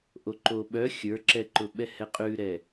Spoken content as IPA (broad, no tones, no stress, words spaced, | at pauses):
ʔoǃoɓœ xʲə˞ǁɛǃʊɓɛ hɛqʼʉɾɛ